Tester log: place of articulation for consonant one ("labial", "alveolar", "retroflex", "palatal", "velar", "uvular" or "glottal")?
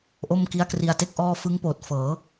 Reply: glottal